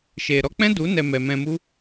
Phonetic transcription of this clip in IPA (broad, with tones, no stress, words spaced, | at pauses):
ʃe˨ ɾɔ˧k͡pɛ̃˦du˨˦nɛ˨ mɛ˨mɛ̃˧mu˦